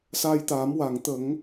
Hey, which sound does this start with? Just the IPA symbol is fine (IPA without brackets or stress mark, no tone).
s